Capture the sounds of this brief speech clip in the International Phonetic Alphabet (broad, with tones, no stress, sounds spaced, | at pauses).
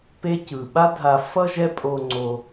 p e˦ c ɯ˩ ɓ a˦ dʱ a˨ f ʌ˥ ʒ ɛ˦ pʼ o˨ ŋ͡ǀ o˨